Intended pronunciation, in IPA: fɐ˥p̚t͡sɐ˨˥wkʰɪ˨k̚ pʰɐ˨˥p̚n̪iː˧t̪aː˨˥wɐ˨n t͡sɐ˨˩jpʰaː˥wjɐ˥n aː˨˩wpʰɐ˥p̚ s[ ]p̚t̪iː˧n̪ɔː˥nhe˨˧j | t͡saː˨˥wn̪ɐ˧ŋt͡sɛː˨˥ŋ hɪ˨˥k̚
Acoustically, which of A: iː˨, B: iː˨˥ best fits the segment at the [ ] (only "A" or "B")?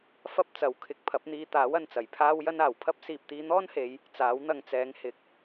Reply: A